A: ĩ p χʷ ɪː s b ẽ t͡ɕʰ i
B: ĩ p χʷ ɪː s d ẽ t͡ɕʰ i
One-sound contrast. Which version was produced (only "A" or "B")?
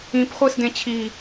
B